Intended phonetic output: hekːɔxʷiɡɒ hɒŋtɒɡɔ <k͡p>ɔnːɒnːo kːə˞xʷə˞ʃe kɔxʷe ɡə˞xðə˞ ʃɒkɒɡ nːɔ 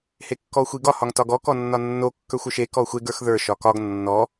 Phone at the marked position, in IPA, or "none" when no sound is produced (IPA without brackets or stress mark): k